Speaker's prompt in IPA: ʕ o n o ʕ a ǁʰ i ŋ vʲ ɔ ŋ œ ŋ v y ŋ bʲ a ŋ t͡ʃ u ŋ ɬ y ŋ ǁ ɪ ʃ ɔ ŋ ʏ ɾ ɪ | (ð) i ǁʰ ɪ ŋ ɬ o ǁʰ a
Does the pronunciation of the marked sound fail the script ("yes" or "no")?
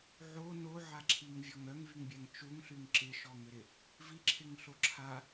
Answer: yes